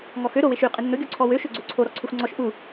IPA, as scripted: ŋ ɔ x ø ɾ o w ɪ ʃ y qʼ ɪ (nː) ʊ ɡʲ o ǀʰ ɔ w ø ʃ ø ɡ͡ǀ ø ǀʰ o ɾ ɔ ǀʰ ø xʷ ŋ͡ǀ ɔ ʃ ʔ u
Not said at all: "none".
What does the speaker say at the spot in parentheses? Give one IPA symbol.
nː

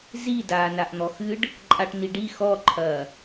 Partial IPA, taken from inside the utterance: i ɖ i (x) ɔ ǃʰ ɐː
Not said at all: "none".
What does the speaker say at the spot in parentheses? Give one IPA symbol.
x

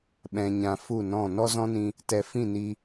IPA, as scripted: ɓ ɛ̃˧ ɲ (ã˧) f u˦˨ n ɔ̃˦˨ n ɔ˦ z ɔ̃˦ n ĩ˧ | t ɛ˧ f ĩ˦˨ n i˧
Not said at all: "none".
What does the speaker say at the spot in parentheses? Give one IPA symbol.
ã˧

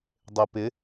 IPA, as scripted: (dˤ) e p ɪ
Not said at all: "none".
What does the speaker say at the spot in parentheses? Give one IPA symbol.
dˤ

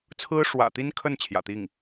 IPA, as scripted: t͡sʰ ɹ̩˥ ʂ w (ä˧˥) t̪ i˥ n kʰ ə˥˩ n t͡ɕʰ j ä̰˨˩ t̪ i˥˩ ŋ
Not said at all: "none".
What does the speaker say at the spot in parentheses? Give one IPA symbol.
ä̰˨˩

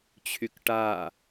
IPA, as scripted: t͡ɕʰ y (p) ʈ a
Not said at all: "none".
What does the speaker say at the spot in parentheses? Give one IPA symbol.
k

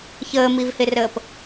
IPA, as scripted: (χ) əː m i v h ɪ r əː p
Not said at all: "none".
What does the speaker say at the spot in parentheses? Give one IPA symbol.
ç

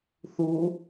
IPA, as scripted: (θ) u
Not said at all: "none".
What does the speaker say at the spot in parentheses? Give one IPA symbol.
θ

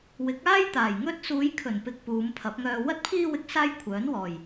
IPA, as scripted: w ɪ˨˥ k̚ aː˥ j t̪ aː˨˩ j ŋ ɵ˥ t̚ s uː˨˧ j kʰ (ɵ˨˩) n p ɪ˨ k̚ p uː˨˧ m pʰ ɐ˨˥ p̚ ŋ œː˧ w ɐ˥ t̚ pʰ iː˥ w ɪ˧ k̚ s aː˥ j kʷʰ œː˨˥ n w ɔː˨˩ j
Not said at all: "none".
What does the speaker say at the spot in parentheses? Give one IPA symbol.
ɵ˨˩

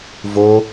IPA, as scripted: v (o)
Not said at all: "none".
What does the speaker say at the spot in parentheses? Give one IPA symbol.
o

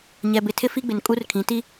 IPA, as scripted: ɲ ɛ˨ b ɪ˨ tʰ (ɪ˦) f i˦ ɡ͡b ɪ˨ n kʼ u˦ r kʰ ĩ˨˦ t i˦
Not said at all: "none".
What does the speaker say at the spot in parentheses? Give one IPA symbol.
ɪ˦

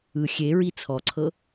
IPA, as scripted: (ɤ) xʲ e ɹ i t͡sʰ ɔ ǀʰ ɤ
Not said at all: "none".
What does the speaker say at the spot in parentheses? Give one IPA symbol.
ɯ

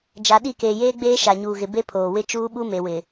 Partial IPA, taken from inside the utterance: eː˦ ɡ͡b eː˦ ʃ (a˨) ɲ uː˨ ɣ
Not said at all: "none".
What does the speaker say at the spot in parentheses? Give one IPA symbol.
a˨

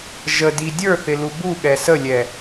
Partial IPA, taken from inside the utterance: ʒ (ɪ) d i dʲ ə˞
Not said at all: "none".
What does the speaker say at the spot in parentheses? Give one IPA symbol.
ə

